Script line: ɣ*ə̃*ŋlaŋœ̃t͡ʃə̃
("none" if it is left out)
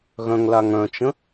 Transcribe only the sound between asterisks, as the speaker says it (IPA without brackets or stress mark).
œ̃